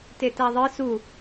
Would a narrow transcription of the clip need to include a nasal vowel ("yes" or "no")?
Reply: no